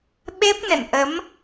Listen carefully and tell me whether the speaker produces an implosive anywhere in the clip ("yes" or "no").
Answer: yes